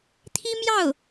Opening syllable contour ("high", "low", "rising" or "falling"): high